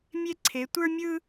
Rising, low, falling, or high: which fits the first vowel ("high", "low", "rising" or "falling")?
high